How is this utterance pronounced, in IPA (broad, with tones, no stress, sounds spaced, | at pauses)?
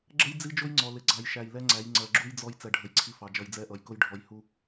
ɡ͡ǁ ə˦ j d͡z i˦ d͡ʒ ʊ˦ j ŋ͡ǀ ɔ˨ l ɪ˨ ɡ͡ǀ ɑ˨ j ʃ æ˨ j l ɛ˦ ŋ͡ǀ æ˨˦ j ŋ͡ǀ ɜ˨ ɡ͡ǁ u˦ j d͡z ɔ˦ j t͡s ɛ˨ ɖʱ ə˨ j ǀʰ i˦ f ɑ˨ d͡ʒ ʌ˨ j d͡z ɛ˦˨ ʔ ʌ˨ j k ʊ˦ j ɖʱ ɔ˨ j h u˦